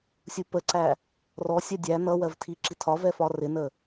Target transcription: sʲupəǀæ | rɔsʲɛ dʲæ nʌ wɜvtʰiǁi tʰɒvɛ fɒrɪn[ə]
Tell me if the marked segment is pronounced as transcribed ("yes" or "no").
yes